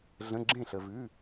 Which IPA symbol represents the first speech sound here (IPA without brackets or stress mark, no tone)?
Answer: ɮ